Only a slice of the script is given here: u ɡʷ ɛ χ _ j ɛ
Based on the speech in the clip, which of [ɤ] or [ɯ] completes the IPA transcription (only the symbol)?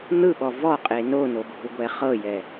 ɤ